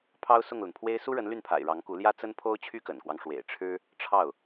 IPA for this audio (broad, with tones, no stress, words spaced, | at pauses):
pʰɑ˥ʊ̯sʊ˥˩ŋlə˩npʰwe˥ɪ̯ su˥ɻə˧˥n ly˥˩npʰa̰˨˩ɪ̯ ɻɑ˧˥ŋku˧˥ ljä˥ t͡sə˥npʰo˥ʊ̯ t͡ɕʰy˥kə̰˨˩nkwɑ˦ŋ ʂwḛ˨˩ɪ̯ʈ͡ʂʰɻ̩˥ | ʈ͡ʂʰɑ˥˩ʊ̯